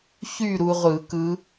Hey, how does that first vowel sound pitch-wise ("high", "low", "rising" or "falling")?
falling